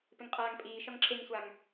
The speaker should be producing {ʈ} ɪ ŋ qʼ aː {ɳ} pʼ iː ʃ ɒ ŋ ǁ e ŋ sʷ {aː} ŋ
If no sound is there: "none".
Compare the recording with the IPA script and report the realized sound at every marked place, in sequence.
p, ŋ, a

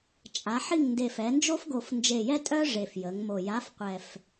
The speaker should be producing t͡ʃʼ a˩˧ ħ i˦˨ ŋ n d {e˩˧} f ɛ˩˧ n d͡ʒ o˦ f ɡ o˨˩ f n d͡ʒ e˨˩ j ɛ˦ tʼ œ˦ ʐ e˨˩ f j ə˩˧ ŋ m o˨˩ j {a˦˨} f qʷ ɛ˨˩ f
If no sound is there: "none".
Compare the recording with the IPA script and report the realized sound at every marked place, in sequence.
e˨˩, a˨˥

